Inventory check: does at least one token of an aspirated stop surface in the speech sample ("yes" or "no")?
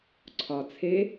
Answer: yes